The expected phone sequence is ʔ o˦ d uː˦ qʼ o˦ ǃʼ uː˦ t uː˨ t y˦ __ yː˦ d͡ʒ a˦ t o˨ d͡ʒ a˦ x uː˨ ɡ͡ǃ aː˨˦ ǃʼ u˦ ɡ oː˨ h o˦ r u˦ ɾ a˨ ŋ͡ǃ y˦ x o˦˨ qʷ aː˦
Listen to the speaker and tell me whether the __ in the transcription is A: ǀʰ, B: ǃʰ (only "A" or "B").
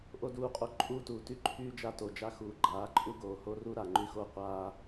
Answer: B